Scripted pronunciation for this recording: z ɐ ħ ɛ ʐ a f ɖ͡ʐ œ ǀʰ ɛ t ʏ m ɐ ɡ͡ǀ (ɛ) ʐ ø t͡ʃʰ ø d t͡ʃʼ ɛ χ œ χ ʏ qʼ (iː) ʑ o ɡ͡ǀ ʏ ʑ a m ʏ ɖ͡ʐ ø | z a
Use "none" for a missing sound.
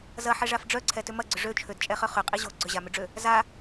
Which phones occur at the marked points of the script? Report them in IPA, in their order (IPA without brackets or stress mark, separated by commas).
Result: ʏ, i